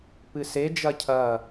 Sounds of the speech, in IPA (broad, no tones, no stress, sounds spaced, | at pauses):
p ɨ s e d͡ʒ ɐ cʰ ɐ